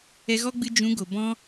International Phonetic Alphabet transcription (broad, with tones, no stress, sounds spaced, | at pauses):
ɛ˧ ɣ ɔ˦ ɡ͡b ɨ˧ d͡ʒ ũ˨˦ ɡ o˨ b ɔ̃˧